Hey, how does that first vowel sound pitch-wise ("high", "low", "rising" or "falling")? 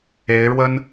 rising